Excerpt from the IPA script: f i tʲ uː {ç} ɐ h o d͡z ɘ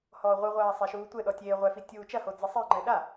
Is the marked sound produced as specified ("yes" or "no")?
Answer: no